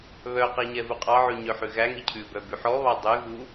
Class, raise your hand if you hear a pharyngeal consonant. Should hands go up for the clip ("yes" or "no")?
yes